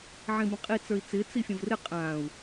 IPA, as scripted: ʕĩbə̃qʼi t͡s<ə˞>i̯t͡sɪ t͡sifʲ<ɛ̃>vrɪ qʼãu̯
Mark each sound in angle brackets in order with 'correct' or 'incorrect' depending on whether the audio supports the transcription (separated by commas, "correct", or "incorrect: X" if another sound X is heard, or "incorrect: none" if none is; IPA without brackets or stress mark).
correct, incorrect: ə̃